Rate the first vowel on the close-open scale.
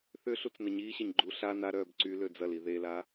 close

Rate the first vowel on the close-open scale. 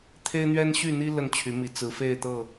mid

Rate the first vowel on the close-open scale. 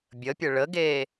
mid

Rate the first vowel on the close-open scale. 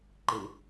close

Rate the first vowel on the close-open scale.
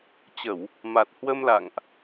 mid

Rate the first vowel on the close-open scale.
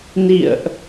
close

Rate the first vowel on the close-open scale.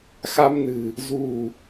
open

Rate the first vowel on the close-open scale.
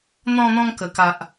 mid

